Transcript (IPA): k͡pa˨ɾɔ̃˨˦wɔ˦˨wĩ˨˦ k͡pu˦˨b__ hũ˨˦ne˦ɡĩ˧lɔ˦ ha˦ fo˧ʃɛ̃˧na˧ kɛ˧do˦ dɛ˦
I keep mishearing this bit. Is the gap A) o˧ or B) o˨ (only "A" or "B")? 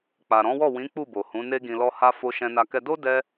B